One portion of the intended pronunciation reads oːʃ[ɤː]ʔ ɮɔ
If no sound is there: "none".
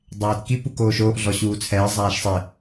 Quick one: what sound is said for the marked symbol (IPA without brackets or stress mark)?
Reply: oː